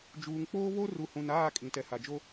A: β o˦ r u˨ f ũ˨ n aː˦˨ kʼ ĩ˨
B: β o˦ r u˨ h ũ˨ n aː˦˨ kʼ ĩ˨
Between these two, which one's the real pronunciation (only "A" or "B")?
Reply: B